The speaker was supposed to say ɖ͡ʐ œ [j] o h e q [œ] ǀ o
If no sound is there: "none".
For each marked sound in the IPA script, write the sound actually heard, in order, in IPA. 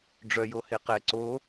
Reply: j, ɛ

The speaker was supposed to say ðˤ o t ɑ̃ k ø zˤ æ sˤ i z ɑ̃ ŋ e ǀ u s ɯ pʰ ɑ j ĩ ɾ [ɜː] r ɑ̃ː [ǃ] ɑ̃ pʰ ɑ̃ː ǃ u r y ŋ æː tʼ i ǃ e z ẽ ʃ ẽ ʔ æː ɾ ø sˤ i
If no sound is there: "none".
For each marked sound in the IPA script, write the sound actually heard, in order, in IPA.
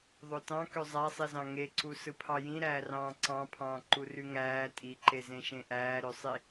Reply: æː, ǀ

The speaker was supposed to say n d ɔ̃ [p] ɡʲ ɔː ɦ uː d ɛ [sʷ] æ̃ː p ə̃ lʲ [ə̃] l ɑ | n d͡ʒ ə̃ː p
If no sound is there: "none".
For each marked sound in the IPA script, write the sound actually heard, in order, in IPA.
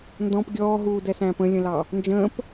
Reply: p, s, ə̃

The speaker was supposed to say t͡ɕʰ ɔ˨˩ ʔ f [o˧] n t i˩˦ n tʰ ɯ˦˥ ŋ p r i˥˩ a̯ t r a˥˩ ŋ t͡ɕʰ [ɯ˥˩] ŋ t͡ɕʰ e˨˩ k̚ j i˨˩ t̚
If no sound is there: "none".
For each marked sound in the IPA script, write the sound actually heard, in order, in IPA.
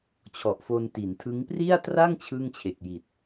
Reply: o˧, ɯ˥˩

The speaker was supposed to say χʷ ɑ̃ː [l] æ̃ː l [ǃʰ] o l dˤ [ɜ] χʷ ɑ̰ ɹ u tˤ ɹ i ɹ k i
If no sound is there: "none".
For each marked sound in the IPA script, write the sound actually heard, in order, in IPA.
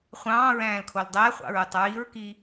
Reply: ɹ, kʰ, æ

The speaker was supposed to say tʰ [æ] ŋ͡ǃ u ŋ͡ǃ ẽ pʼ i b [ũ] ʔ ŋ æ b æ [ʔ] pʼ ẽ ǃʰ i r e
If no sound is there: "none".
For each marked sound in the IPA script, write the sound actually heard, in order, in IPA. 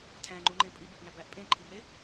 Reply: æ̃, u, ʔ

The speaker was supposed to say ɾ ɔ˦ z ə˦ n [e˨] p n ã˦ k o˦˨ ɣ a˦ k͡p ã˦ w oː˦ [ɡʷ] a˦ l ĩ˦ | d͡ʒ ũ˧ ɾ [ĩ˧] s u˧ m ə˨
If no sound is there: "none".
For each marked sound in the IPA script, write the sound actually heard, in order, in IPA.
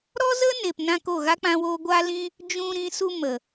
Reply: e˨, ɡʷ, ĩ˧

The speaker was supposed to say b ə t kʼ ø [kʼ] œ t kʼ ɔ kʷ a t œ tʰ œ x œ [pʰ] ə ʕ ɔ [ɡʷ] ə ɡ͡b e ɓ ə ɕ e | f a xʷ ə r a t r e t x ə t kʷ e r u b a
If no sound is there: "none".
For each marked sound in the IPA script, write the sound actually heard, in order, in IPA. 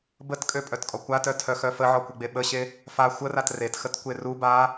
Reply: pʼ, f, kʷ

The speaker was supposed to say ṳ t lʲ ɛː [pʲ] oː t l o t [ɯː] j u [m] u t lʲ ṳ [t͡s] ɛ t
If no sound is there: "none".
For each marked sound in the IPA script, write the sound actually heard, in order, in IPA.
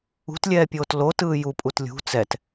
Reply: pʲ, ɯː, pʼ, t͡s

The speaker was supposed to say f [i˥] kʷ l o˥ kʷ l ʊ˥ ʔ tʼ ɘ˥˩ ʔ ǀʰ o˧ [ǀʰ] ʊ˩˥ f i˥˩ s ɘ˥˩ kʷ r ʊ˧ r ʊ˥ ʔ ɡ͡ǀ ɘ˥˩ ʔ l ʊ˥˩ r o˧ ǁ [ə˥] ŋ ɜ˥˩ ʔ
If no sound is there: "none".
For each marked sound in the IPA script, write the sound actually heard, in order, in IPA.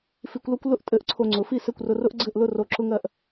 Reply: i˧, ŋ͡ǀ, ʊ˥

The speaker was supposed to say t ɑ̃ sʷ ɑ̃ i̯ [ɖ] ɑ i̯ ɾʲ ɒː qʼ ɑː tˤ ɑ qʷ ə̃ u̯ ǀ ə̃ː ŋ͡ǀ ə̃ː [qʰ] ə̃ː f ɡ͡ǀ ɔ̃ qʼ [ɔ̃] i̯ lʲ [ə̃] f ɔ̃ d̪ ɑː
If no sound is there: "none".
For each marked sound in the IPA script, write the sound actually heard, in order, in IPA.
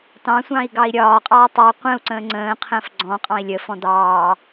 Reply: ɡ, qʰ, ɑ̃, ə

